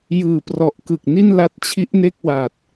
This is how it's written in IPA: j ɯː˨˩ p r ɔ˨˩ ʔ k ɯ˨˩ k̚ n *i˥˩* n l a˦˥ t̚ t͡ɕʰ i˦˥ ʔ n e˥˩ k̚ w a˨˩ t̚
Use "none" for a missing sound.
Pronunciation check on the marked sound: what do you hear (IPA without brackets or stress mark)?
i˥˩